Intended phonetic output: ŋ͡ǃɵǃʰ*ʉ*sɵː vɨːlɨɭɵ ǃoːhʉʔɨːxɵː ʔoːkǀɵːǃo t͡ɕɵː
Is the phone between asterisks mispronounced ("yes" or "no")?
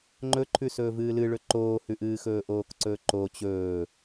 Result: no